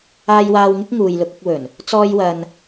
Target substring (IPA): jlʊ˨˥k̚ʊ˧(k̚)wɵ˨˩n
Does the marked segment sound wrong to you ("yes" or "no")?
no